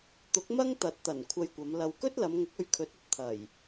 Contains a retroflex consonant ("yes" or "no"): no